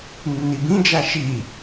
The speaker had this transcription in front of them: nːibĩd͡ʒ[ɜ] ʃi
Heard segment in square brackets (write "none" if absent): æ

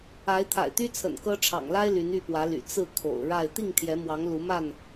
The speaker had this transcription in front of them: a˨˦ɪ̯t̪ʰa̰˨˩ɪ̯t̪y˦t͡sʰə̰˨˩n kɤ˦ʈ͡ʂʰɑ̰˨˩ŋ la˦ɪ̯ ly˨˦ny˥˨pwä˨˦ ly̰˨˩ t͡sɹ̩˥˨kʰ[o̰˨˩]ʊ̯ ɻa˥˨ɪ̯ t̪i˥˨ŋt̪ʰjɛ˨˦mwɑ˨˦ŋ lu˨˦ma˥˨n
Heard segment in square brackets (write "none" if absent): o̰˨˩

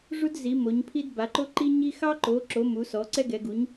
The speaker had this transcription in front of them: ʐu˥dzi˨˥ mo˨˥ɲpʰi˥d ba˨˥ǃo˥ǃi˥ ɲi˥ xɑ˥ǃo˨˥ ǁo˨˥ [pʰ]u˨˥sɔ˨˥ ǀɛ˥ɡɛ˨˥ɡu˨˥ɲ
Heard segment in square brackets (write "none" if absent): m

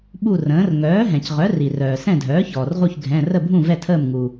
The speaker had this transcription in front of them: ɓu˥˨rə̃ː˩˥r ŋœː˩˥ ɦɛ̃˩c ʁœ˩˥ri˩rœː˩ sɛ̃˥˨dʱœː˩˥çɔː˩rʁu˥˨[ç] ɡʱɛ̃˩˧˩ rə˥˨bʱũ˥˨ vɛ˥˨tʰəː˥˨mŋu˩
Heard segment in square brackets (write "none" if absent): ç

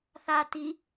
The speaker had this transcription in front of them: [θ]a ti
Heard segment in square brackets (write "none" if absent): θ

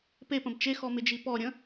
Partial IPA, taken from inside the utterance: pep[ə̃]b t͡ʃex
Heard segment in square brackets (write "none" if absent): ə̃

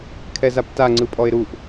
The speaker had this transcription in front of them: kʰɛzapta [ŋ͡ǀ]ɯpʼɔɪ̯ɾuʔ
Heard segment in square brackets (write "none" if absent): ŋ͡ǀ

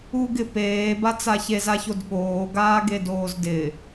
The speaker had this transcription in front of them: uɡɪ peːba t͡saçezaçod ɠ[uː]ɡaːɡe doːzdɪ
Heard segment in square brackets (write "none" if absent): oː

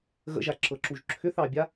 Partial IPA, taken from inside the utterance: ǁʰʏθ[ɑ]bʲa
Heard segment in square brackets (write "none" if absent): ɑ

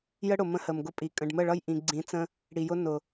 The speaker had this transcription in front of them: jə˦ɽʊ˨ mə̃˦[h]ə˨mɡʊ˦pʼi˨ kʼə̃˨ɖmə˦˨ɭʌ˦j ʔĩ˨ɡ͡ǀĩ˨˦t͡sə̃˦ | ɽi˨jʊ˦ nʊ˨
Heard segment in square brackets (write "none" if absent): h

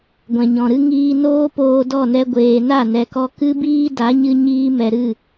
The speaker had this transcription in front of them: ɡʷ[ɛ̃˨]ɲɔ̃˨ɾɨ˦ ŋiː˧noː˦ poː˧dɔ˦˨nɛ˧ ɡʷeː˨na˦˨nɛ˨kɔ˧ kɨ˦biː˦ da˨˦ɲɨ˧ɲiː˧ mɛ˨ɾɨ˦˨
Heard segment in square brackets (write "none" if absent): ɛ̃˨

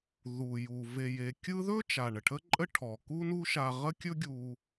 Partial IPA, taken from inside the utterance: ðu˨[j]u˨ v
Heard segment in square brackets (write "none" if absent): j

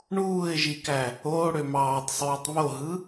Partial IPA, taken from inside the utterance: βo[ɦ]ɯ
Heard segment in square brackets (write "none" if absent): ɦ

